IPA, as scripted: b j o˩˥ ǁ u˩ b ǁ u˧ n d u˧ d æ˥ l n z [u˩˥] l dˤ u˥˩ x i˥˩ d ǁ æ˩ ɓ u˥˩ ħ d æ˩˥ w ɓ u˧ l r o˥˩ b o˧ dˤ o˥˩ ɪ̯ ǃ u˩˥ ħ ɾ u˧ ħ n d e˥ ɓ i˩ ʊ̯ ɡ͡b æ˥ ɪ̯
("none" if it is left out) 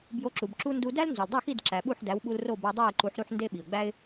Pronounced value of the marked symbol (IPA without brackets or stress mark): u˩